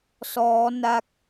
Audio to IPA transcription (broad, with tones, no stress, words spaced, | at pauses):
sɔː˦˥ na˦˥k̚